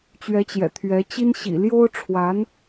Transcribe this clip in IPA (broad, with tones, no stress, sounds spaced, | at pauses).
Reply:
t͡ɕ ɥ ɛ˧˥ t͡ɕ j ɛ̰˨˩ t̪ʰ ɥ ɛ˧˥ t͡ɕ i˥ n ɕ ḭ˨˩ l j o˥ ʊ̯ ʈ͡ʂʰ w a˧˥ n